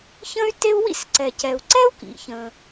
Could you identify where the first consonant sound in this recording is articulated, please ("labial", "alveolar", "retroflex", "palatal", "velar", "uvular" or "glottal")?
palatal